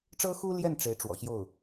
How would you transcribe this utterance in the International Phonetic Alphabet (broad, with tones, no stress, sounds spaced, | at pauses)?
ʈ͡ʂ ɤ˥ x u˥ l j ɛ˥˩ n ʈ͡ʂ e˧˥ ɪ̯ ʈ͡ʂ w ɔ̰˨˩ ɕ j o˥˩ ʊ̯